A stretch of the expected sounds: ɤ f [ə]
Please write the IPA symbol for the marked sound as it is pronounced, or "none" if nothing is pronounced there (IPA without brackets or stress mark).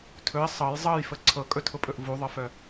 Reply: œ